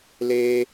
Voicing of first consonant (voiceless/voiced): voiced